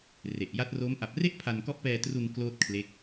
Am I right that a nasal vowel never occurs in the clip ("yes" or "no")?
yes